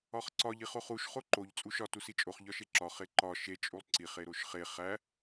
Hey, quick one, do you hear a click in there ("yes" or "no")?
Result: yes